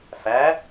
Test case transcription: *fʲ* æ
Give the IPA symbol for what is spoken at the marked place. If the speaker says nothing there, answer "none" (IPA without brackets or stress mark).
f